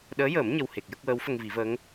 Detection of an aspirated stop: absent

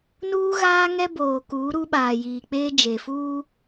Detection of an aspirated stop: absent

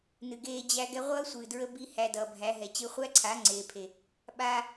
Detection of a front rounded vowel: absent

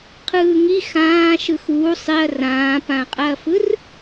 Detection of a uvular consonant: present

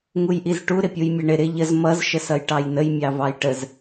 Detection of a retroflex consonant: present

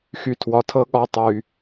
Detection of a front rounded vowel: present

